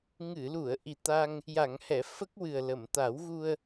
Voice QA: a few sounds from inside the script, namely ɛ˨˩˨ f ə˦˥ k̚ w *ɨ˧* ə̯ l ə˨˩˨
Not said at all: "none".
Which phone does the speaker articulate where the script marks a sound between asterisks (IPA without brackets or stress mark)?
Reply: ɨ˨˩